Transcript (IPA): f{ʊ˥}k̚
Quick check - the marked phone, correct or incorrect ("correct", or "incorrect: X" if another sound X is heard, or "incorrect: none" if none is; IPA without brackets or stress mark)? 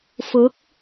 incorrect: ʊ˨˥